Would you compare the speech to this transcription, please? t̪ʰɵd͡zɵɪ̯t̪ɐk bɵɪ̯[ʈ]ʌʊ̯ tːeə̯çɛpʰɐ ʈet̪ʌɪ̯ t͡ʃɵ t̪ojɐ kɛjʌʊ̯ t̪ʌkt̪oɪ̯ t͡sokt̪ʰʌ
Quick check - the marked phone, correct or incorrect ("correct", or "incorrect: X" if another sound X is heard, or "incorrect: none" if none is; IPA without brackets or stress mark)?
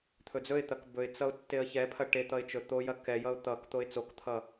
incorrect: t͡s